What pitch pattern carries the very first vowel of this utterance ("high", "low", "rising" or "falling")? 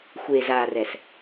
low